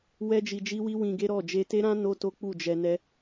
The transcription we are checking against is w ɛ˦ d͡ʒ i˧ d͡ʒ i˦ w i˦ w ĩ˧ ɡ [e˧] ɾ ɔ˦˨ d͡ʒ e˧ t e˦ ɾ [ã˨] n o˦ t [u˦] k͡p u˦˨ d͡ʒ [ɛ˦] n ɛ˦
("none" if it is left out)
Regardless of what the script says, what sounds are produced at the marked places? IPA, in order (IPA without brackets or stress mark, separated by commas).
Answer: e˦, ã˦, o˦, ɛ˧